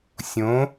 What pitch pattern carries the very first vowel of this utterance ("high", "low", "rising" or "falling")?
rising